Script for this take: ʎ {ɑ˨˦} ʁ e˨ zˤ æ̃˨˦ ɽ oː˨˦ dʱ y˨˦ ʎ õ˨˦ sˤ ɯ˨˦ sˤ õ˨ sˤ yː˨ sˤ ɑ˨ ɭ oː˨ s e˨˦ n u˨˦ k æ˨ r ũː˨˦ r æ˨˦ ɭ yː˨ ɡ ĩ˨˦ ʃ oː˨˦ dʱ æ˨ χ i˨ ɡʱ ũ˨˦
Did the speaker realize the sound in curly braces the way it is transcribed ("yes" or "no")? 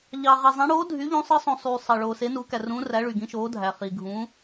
no